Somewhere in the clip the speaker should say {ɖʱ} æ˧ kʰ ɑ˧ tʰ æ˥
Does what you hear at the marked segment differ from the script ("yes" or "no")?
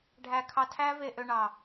no